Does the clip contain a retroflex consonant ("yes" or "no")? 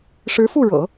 yes